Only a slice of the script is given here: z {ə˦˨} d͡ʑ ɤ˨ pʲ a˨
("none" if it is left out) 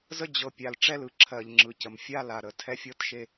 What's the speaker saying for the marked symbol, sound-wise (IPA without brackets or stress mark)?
ə˦